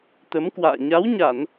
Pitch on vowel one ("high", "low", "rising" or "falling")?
rising